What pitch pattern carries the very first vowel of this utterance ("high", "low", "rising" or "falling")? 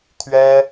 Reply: high